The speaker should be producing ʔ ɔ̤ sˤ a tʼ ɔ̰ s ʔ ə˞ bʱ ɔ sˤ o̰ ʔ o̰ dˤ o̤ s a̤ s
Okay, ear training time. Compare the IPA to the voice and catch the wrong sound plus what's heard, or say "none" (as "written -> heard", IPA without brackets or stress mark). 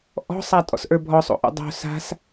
none